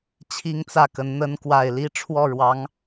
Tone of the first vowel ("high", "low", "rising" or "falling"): high